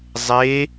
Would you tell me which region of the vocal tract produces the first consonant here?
tongue tip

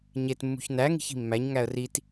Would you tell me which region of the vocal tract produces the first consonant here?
palate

